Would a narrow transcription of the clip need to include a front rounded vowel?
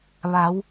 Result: no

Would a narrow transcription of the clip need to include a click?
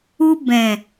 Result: no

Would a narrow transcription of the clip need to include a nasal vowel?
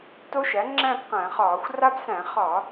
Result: yes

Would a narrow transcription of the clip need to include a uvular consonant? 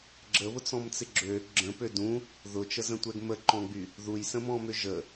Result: no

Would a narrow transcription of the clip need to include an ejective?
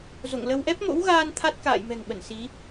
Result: no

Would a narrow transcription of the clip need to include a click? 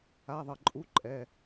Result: yes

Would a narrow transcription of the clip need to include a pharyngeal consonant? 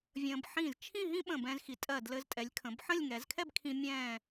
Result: yes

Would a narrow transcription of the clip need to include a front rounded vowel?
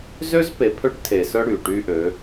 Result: yes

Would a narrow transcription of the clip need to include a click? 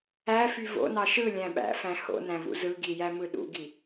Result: no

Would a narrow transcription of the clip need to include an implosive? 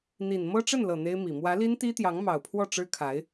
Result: no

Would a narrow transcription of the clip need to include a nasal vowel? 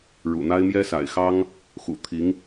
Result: no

